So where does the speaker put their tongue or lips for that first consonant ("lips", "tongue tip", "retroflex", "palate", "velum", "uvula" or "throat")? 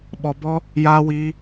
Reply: lips